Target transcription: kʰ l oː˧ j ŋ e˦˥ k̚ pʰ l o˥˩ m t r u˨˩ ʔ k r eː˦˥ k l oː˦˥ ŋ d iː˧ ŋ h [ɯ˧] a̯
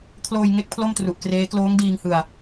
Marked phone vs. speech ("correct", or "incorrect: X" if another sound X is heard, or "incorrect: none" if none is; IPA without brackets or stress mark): correct